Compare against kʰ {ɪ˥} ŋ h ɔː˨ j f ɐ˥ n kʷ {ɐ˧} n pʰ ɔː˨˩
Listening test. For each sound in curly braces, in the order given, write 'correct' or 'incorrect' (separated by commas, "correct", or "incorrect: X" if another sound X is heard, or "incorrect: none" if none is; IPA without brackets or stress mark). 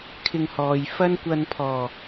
incorrect: ɪ˧, correct